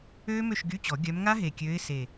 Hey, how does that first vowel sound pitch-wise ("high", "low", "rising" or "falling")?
high